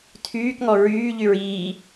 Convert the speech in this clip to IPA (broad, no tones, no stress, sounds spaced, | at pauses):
tʰ yː k ŋ ɔ ɹ yː ʎ y ɹ iː